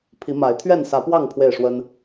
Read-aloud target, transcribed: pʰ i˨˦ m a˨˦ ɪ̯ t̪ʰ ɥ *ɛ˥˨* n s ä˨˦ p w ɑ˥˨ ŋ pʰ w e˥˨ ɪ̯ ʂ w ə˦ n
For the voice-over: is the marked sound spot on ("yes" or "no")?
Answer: yes